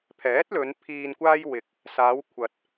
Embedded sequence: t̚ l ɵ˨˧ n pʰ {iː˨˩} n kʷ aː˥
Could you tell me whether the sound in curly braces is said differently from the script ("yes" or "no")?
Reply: yes